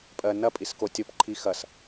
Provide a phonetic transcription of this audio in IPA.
pʼ ɜ n ɐ pʼ i s k o tʲ o p ǃʰ i x ɐ s

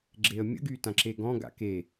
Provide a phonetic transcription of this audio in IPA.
ɡ͡ǁ e ə̯ mʲ ə̰ ɡ yː t ã ǁ e ɡ ɔ̃ ɡ a̰ k e

